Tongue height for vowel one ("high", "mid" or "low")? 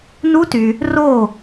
high